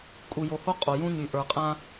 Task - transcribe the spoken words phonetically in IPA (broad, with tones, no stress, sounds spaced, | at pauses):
kʼ u˨ j o˨ h o˦ qʼ o˨ j ũ˦ ɲ y˨ ʔ ə˞˨ qʼ ã˦